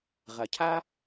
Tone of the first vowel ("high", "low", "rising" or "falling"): low